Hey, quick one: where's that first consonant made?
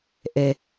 throat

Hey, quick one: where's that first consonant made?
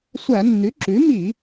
tongue tip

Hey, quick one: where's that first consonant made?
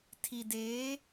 tongue tip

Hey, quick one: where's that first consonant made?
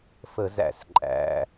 lips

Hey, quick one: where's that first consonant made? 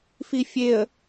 lips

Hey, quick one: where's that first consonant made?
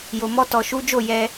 palate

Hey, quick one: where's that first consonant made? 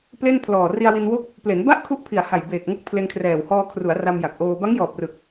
lips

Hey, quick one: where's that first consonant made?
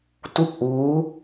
tongue tip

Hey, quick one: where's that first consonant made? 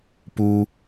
lips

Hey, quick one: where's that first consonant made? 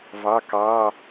lips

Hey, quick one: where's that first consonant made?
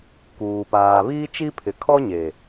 velum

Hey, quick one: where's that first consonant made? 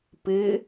lips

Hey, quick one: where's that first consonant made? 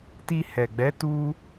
tongue tip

